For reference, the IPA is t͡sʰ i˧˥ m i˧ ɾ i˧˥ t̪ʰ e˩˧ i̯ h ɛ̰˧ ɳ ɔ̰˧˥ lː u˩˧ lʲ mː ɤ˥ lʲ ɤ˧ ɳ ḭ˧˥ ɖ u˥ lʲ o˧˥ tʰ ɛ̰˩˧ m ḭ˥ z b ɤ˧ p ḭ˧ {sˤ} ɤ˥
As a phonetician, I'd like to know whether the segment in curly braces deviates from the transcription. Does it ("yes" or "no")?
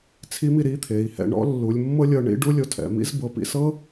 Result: yes